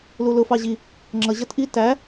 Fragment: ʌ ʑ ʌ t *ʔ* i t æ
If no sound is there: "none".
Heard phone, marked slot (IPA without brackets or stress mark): ʔ